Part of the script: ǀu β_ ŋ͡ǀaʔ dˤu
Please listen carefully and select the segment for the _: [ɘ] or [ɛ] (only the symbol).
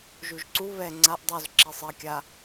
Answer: ɛ